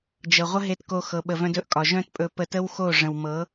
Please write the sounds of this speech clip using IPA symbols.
d͡ʒɤ˨ʁʷə˦ ɦe˦tko˦ xɤ˧ɓə˧vœ̃˦d ɵ˦ʔkʼɒ˨ʒœ̃˦t pʼɵ˧ pə˧tə˦wxo˦˨ ʐə̃˨wmɤ˨˦

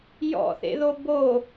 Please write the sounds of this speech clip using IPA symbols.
jɔ̰θḛðo bo

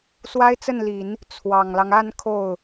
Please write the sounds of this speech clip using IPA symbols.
swa˥ɪ̯t͡sə˥˩nli˨˩˦n | t͡sʰwɑ˨˩ŋlɑ˦ŋ a˥˧n kʰo˥˩ʊ̯

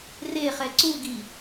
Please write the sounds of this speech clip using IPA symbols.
reχɛ ǀuɡi

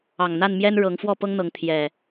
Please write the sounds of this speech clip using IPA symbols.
ɑ˨˩ŋn̪a˥˨nmjɛ˦n ɻɤ˨˦ŋfwɔ˥˨pɤ˦ŋn̪ɤ˨˦ŋ t̪ʰjɛ˨˩

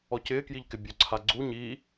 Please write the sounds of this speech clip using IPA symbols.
ɔcɪːkjiʎkɪ bʲoǀʰaɡ͡ǀu ɲi

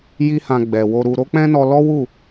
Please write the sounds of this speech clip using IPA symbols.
ji˦hã˧ ɡ͡bɛ˨wo˧ɾu˧ ɾo˦k͡pɛ̃˦nɔ˧ lɔ˦wu˦˨

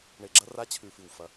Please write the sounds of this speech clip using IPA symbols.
ɳe˧˩ɡ͡ǁɐ˦ ra˦t͡ɕʰʉ˧˩fɨ˧˩w fɐ˦

